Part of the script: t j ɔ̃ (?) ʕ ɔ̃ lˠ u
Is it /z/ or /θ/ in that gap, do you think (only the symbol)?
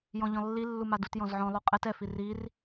z